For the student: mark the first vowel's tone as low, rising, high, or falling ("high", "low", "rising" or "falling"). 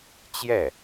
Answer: falling